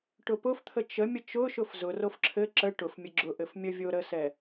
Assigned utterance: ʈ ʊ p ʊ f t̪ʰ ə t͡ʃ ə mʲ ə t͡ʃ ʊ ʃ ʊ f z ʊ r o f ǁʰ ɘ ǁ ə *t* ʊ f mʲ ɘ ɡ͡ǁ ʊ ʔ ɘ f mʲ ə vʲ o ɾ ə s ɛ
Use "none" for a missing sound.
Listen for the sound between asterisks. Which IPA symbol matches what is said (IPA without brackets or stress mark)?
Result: ʈ